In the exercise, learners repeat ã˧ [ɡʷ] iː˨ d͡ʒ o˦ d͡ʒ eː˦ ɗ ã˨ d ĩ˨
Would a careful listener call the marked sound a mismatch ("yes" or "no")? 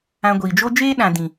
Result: no